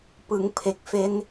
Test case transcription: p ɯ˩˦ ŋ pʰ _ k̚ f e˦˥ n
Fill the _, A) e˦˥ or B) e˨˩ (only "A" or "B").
B